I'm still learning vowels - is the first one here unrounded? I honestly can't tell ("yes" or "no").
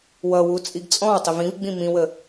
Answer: yes